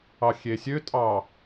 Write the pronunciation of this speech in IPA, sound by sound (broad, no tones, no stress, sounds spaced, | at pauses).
ɑ xʲ e sʲ ø tʼ ɑ